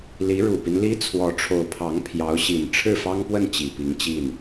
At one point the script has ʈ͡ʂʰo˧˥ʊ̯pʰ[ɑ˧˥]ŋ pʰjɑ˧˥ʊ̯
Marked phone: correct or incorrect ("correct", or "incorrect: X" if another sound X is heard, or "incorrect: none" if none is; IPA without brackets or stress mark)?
correct